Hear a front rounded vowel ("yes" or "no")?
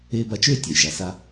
yes